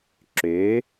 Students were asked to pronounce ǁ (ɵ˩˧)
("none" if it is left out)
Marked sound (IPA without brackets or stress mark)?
ø˩˧